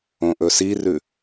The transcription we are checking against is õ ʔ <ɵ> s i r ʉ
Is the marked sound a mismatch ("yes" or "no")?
no